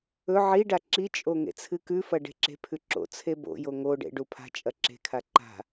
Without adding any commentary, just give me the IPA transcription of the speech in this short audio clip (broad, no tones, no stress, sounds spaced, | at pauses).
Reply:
ɵ ʕ i ɖ a ǁ i t͡ʃʼ o ŋ ḛ t͡sʰ ɨ k ʉ f ɐ ɖ e̤ ǁ e̤ pʰ ʉ ǁ o̰ t͡sʰ e b o̰ j o ŋ o ɖ ḛ ɖ u pʰ a̤ t͡ʃʼ ɐ ǁ e̤ kʰ a ǃ a̤